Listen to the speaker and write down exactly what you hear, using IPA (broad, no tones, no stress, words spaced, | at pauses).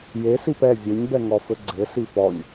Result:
je sipɛ vʲeɲbɛŋɔ fɘɡ͡ǀɘ sifɔɲ